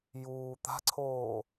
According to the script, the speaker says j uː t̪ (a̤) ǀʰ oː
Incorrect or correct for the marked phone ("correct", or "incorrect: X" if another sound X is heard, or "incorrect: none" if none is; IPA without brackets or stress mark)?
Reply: correct